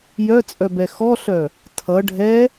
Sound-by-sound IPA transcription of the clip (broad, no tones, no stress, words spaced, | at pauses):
jœt͡sʼœbɛ xɔɬœ | tʰʌ ɖʱɛ